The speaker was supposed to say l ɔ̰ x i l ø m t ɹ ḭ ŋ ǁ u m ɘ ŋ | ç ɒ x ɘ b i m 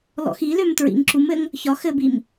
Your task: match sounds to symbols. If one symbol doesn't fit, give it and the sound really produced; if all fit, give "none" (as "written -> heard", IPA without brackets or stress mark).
none